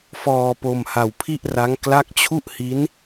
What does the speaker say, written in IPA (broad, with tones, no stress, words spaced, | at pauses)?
fɔː˧po˧m ha˧wpʰi˥˩ʔra˦˥ŋ kla˦˥k̚t͡ɕʰu˥˩ʔhi˦˥n